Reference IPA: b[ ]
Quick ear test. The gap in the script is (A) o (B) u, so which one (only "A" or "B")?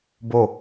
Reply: A